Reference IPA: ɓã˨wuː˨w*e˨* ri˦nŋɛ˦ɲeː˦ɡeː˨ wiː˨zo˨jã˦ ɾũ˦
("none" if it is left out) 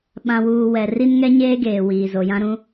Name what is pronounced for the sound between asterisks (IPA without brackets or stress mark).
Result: ɛ˨